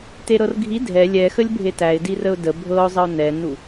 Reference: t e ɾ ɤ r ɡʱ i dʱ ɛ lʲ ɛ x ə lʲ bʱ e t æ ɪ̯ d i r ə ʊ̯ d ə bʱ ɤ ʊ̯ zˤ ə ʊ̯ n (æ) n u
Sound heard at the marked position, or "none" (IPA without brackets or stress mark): ɛ